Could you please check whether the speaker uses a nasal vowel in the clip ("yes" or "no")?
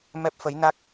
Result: no